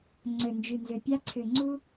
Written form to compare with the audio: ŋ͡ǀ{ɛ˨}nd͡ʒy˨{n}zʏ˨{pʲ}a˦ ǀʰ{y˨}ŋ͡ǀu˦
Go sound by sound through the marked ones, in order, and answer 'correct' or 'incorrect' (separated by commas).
incorrect, correct, correct, incorrect